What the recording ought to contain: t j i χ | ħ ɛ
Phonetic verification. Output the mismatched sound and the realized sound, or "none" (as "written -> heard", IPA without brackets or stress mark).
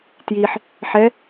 χ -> ħ